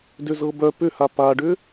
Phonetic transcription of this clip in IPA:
d ʏ z ɤ b œ p ʏ h a p a ɖ ʏ

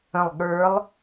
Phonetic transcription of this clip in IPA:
ə̃ lˠ ɠ ə˞ lˠ

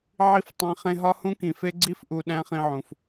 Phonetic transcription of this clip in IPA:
ʕ i˧ f tˤ ĩ˨ χ ẽ˧ ɦ ɒ˦ h ũ˦ k ĩ˨ f e˧ ɡ͡ǀ i˧ f ʔ u˨ ɗ æ̃˦ χ ĩ˧ ʕ ũ˨ f

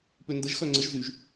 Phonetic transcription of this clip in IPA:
p ø n d ə ʒ x œ ŋ͡ǀ ə ʒ z y ʒ

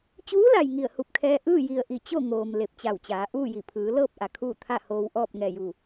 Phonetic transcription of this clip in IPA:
t͡ɕ uː˧˥ l a˩ j ŋ i˧˩ ə̯ h u˧˩ p̚ kʰ ɛː˧ ʔ ɯː˥˨ j i˧˩ ə̯ ʔ i˧˩ t͡ɕ o˥˨ ŋ oː˩ m l e˧˩ p̚ t͡ɕ a˧˩ w t͡ɕ aː˩˧ ʔ uː˥˨ j i˧˩ pʰ ɯː˩˧ l ɤː˥˨ p̚ ʔ a˩ kʰ uː˥˨ t̪ʰ a˥˨ h oː˧ w ʔ ɔː˥˨ p̚ ŋ ɛː˧˩ j u˧˩

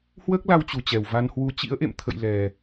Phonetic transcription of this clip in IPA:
h w əː˦˥ k̚ l a˧ w t͡ɕ u˨˩ t͡ɕ ɛ˨˩ w v a˧ n h w u˧ t͡ɕ ḭ˧˥ ə̯ ʔ ḛ˧˨ m t̪ʰ ə̰˧˨ j l ɛ˨˩

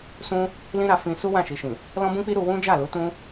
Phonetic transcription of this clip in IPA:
s ũ˦ | l ĩ˦ ɾ a˧ f ĩ˧ s u˦ w ã˦˨ ʃ i˨ ʃ ĩ˨ | l ɔ̃˦ b ũ˦ k͡p i˦ ɾ u˧ w ũ˦ d͡ʒ a˦˨ l u˨˦ t ũ˦

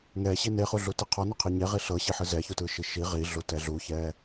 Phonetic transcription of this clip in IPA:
ŋ ɛ ɕ i n e χ u ɮ u t i qʰ ɔ n o qʰ i ɲ e ʁ i ɬ ɤ ɕ i ħ ɯ z ɛ ç u t ɯ ʃ i ʃ i ʁ i ɮ u t ɛ ɮ u ç ɛ

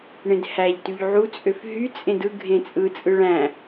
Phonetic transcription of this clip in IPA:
ɳ ẽ d h æ ʎ t y ʎ ʕ u t͡sʼ ø f ɦ y t͡sʼ ẽ d ɯ ɡʱ ẽ t͡sʼ ɯ t͡sʼ ɯ ɭ æ̃

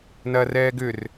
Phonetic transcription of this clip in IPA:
n ɐː r ɛː ɡ ʏ r

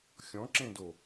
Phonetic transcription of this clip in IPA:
xʲ ɔ̃ ǁ ẽ d o

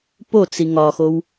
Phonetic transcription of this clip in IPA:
p o t͡s i ŋ ɒ x o w

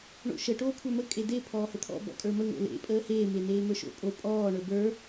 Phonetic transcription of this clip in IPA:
ɳ o̰ ʃ ə ʈ oː kʷʰ ə˞ m ə kʼ e d e pʰ ɔː h ə t̪ʰ ɔ̰ b ɔ̰ kʼ ə˞ m ə ŋ o̰ l ḛ pʼ əː h eː m e n eː m ə˞ ʃ o̰ pʼ o pʼ ɔː ɳ ə˞ b ə˞

